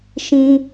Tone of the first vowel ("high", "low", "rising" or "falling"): high